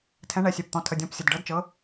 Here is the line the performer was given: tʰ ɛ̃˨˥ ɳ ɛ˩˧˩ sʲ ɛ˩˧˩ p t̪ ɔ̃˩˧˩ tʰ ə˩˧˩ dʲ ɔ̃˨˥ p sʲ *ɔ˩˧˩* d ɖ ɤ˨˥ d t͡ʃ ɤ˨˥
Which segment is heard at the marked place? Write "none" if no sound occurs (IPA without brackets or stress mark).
ə˩˧˩